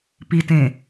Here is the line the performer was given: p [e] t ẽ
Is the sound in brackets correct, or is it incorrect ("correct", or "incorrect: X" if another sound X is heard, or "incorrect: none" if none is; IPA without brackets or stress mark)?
incorrect: i